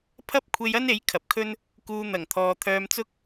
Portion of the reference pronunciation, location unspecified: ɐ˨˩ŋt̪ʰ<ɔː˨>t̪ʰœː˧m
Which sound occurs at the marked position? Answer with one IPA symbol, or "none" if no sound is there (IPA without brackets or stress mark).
ɔː˨